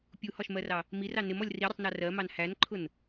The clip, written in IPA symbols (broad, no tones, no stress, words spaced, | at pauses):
pʲuhɒʃmɜrɑ | mirɑ nɪmɔlʲ riɾʲʊtˤnɑ rɜmɑn hænǃʰʊn